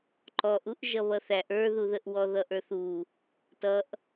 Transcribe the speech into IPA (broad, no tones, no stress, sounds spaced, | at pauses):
ǃ ɔ ʔ u ʔ ʒ ʌ β ʌ θ æ ʔ ə˞ ð u ð ə ʔ w ɔ ð ʌ ʔ ə˞ θ u | t ʌ ʔ